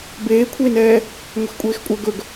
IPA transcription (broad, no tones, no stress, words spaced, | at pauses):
beːkʷʰeːnɛː | ŋʷɛxkʷʼeːxkʷʼœ ɡɵɡ